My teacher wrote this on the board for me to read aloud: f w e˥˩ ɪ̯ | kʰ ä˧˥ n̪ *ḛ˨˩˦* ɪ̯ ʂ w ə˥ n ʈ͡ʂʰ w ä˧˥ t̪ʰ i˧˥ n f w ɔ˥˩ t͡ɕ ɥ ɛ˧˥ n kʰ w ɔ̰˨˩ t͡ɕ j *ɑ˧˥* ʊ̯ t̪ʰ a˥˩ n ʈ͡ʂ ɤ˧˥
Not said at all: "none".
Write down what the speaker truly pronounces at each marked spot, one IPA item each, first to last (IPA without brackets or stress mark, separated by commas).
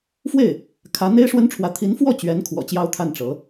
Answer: e˥, ɑ˥